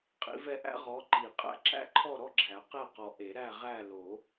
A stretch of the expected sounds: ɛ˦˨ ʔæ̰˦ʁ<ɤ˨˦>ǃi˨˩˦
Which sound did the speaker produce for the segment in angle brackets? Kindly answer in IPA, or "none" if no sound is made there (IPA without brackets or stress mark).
ɔ˨˦